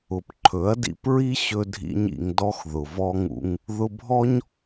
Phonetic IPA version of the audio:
ʊ˨pǃʰɵ˨˦ɐ̯dḭ˧pɹi˦ ɕɵ˦dʱḭ˦ɲḭ˧ŋdɔ˦x ðʊ˨vɔ˦ŋṵ˦ŋ | ðʊ˧bʱɔ˦ɲ

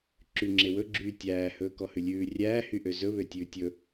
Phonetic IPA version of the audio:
ǁyŋ͡ǁewɵɡ͡ǁyː tʲæːhɵː kɔhʉlʲʉː rʲæːhyʔø zɵβøtʲʉː tʲɵ

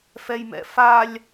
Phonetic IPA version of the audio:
fɛjmɛ̰falʲ

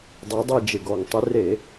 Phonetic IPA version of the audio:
dˤe˨˦dˤɛ˦˨d͡ʒɪ˨˩ɡɔ˨˩ŋ tˤɪ˨˦re˧˩˧

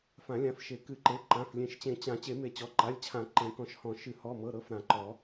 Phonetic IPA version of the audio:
fã˨˩˦lʲã˩˧˩fʃe˨˩˦ kɨ˨˩˦ǃe˩˧˩ ǃã˩˧˩flʲẽ˨˩˦ʃt͡ɕẽ˨˩˦ t͡ɕã˨˩˦ t͡ɕe˨˩˦me˨˩˦t͡ɕɔ˩˧˩ ǃa˩˧˩lʲt͡ɕʰã˨˩˦ ǃẽ˨˩˦kɔ̃˨˩˦ʃhɔ̃˨˩˦ ʃɨ˨˩˦ hɔ˩˧˩mɤ˩˧˩ɾɤ˩˧˩f ɾã˨˩˦ǃɔ˨˩˦

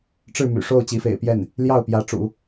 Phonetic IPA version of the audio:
ʈ͡ʂɻ̩˥˩my̰˨˩ʂo˥˩ʊ̯ t͡ɕi˧˥fḛ˨˩ɪ̯pjɛ˥˩n | ljɑ˥˩ʊ̯pjä˧˥ʈ͡ʂṵ˨˩˦

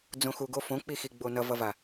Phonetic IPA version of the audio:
d͡zõxuɡo fõk͡pixiɡ͡bo nʌvʌva

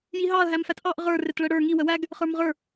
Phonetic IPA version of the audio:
jiɦɑɐ̯ ɦæmfætʔɑʔ ʁə˞ rɪtɭəɽə˞ ŋi wəwæɡ | χə˞mʁə˞

